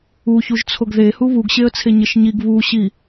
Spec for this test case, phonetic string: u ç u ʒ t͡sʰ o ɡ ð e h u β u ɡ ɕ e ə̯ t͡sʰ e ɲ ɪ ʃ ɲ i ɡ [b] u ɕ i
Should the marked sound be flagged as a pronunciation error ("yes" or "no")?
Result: yes